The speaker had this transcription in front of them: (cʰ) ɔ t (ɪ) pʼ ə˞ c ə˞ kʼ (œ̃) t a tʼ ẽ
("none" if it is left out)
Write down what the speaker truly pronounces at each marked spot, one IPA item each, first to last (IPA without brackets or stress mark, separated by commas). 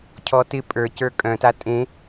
cʰ, ɪ, œ̃